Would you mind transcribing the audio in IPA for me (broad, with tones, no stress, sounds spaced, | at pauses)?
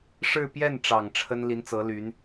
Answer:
ʂ ɻ̩˥˧ p j ɛ˥˩ n ʈ͡ʂ ɑ˨˩ ŋ ʈ͡ʂʰ ə˥ n l i˧˥ n t͡s ɤ˧˥ l y˧˥ n